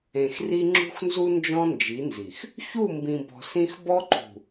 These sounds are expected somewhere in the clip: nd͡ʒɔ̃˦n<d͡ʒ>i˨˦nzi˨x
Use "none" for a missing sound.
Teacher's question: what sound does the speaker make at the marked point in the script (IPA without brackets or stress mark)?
d͡ʒ